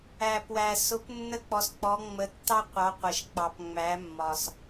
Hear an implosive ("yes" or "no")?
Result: no